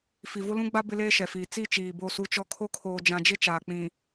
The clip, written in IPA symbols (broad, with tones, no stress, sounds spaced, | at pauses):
f i˨ v ʊ˦ l ũ˦ ɡ͡b a˦ b ɪ˦ l eː˦ ʃ ɛ˨ f iː˨ t͡s i˦˨ t͡ʃ iː˨ b o˦˨ s u˦ t͡ʃ ɔ˦ kʰ o˦ kʰ oː˨ d͡ʒ ã˨ d͡ʒ ɪ˦ t͡ʃ aː˨ k͡p ĩ˨